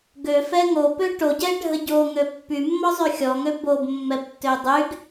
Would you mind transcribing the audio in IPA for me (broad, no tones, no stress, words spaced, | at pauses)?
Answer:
ɡøfɛ ŋopø ʈoɟɛɖʱə ɟoŋø pːymːɔzˤy xʲɔŋø bobmːɛbtːø dˤyɡ